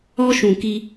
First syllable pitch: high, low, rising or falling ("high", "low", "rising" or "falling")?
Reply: high